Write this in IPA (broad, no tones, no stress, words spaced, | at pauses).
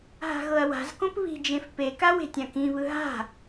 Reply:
ɦa̤ɣɤɐ̯wa̤zkõp βi̤d͡ʒẽf peka we̤tʲãkĩβɯ ɦa̤